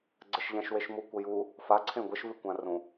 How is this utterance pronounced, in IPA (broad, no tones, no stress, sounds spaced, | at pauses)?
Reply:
ɡ͡ǀ ə ʃ ʎ ã ʃ w e ʃ m u kʷ ə j u | f a ǀʰ ẽ ɡʷ ə ʃ v ʉ kʷ ã r ũ